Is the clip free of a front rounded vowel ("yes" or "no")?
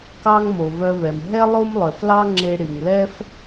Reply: no